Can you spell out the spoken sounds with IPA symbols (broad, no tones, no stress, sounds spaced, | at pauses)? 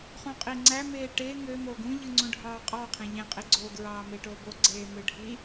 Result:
χ ũ qʼ i ŋ͡ǀ æ m eː ʈ e ŋ ø m o ɡ ũ ʎ ɯ ŋ͡ǀ ũ ɖʱ ɑː qʼ ɑ qʰ ẽ ʎ ẽ qʼ i ɡ͡ǀ o ɡ ɹ ɑː m e ʈ o b o ɡ͡ǀ eː m ɯ ɖʱ i